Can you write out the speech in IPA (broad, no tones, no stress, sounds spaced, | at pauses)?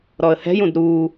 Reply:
ɾ ɔ ə̯ h ɛ̤ j ũ d ɾ u